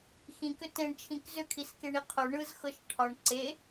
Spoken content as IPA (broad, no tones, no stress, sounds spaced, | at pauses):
x ĩ k ʏ t ẽ ɳ t͡ʃʰ ĩ k z ʏ kʰ i s k e ɳ i qʰ o ɳ ɯ z x ɤ ʃ ʈʰ ɒ ɳ ǀ e